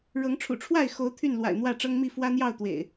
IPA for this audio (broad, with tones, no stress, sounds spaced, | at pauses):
ɻ ɤ˨˦ ŋ ʈ͡ʂʰ ṵ˨˩ ʈ͡ʂʰ w a˥˨ ɪ̯ x o˨˦ ʊ̯ t̪ʰ y˥˨ n l w a̰˨˩ ɪ̯ n̪ w ä˥˨ ʈ͡ʂ ɤ˦ ŋ m i˥˨ f w ä˦ n̪ j ɑ˥˨ ʊ̯ t̪ w ḛ˨˩ ɪ̯